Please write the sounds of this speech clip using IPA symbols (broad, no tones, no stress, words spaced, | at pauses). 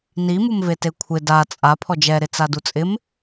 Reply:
nimumvete kʷʰɪ da t͡sʼa pʰɔd͡ʒɛɾɪ t͡sadut͡sʼɪm